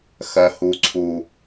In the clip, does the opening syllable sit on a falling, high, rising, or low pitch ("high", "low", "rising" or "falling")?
low